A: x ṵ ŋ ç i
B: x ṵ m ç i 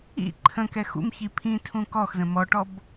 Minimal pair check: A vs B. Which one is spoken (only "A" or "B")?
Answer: B